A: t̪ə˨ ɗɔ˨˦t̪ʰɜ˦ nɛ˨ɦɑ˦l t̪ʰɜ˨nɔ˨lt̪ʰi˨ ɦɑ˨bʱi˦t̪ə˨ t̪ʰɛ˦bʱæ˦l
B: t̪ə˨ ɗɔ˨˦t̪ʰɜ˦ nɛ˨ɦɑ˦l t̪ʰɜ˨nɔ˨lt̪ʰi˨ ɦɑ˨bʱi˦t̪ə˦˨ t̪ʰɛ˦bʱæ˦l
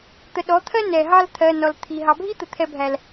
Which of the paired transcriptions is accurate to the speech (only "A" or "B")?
A